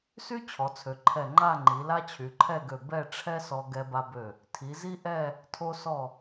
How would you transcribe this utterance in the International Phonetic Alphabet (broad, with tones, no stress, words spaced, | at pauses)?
sy˥ t͡ɕʰɔ˩˧t͡sʰø˩˧ ǃʰɛ˧˩ŋ͡ǃa˥˧ŋ͡ǃi˩˧ la˥t͡ɕʰy˩˧ǃʰɛ˥˧ɡø˧˩ bɛ˥˧ʈ͡ʂʰɛ˥sɔ˧ ɡɛ˧ba˧bø˧˩ | tʰi˩˧ zi˥ʔɛ˥˧ | tʰo˧sɔ˧˩